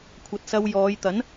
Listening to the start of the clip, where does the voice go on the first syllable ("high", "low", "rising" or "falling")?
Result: low